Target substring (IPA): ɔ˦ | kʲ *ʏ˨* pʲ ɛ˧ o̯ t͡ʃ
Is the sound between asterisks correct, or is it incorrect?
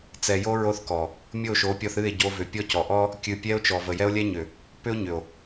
incorrect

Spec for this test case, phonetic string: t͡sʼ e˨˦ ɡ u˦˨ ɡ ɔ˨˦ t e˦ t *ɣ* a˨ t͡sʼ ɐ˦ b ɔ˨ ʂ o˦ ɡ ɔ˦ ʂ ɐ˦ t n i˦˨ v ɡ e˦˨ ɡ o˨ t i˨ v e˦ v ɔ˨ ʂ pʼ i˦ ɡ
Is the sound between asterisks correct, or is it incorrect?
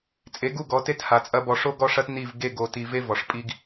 incorrect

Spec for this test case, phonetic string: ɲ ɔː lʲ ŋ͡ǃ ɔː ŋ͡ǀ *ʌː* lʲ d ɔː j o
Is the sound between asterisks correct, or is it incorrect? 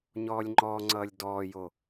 correct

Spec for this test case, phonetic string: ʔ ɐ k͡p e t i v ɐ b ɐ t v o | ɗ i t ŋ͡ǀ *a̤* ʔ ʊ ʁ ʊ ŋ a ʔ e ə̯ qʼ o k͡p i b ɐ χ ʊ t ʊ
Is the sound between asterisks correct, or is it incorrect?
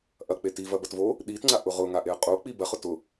incorrect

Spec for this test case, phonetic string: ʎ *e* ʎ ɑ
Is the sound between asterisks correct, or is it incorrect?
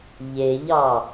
correct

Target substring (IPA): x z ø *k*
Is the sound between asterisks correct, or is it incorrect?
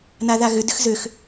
incorrect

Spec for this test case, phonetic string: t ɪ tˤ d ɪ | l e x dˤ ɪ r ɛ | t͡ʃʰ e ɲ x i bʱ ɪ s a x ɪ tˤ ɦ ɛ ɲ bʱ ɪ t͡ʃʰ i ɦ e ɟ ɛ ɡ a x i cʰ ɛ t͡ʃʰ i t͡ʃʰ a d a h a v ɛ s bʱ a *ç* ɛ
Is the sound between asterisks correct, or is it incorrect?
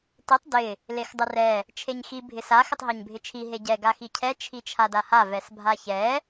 correct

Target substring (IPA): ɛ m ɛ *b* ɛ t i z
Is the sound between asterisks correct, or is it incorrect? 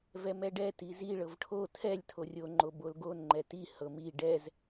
incorrect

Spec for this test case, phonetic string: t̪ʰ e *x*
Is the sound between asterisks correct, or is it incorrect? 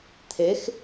correct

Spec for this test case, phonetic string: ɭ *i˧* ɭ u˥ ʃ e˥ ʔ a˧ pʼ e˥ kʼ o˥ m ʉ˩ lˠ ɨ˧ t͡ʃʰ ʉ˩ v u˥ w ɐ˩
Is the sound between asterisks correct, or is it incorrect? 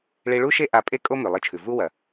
correct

